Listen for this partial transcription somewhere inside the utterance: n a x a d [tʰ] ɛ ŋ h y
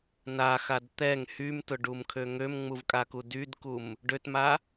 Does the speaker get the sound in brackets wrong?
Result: yes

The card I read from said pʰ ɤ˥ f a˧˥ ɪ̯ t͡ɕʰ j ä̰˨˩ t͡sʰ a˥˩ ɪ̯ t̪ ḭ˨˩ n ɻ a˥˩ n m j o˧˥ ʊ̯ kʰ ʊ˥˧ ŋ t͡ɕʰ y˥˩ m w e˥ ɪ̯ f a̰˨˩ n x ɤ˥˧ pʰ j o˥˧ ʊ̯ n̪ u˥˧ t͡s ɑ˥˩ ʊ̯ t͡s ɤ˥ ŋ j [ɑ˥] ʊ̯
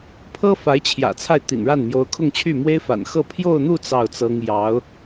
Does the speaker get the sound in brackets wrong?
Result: yes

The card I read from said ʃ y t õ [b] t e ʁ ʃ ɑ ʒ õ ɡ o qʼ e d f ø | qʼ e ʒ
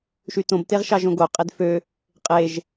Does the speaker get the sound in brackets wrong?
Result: no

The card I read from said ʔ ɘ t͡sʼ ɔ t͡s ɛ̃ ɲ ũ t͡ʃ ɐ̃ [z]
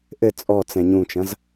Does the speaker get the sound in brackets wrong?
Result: no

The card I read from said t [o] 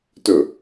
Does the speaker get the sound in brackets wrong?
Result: yes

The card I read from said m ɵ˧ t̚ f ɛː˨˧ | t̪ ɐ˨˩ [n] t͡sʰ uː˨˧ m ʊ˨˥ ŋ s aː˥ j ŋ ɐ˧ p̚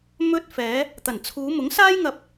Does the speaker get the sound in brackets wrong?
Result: no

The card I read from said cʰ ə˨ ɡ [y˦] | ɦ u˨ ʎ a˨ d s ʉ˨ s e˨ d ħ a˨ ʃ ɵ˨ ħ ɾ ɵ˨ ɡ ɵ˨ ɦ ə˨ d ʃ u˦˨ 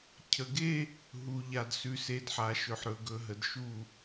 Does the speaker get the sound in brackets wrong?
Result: yes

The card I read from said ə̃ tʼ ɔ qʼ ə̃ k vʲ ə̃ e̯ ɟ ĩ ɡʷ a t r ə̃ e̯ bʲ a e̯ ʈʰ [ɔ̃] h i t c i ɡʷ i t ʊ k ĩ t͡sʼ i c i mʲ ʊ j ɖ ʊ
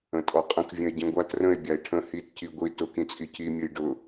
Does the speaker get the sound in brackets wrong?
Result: yes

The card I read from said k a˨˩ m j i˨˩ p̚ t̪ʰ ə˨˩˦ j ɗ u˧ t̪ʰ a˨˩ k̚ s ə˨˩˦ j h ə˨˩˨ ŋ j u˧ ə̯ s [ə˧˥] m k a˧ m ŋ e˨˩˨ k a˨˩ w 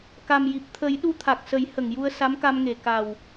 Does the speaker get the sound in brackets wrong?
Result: yes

